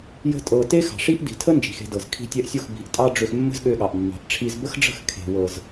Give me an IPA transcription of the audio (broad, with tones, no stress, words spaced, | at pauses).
jə̤˦ tʼɤ˧ te˦xɑ̤˨ʂi˦ʔ di̤˨tʰə˦ nd͡ʒi̤˨xe̤˧dɤ˨z kʰi̤˧tʲɛ˧ʔsʲo˦˨x bi̤˨˦ʔtʼɑ˦ɖ͡ʐø˧x mːə̤˦zɠø˧ɠɑ˨ʔ mːɑ̤˨ʔʈ͡ʂʰi˧z bə˦xɖ͡ʐə̤˦˨x kʰe̤˨wɤ˨z